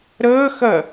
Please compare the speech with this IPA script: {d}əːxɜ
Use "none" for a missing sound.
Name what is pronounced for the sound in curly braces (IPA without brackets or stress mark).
ɾ